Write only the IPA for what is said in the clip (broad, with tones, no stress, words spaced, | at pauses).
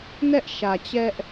nɛ˦ʔʃä˨t͡ɕɛ˦ʔ